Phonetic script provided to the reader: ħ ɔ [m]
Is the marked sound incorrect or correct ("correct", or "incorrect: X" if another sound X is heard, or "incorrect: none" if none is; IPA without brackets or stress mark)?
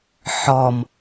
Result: correct